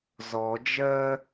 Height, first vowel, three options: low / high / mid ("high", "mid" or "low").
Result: mid